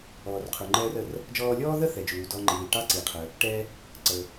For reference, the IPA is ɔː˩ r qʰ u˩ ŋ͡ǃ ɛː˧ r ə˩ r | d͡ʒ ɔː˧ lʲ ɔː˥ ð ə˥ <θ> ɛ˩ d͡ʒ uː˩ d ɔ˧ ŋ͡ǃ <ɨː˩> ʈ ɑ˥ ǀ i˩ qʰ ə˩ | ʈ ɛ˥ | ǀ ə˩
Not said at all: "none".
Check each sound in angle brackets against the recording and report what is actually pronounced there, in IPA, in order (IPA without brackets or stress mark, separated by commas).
θ, iː˩